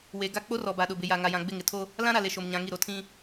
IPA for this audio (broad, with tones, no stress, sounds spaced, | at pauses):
w e˨ ɡ a˦˨ k͡p o˦ r ɔ˨ b a˨ ɗ ʊ˨ b ɪ˨ j a˨ ŋ a˨ j ã˨ ɡ͡b ɪ˦˨ ŋ ɪ˨ tʰ o˦ | l ã˦ ɾ a˨ l e˨ ʃ o˨ m ɲ ã˨ ŋ i˦˨ ɾ o˦ tʰ ĩ˦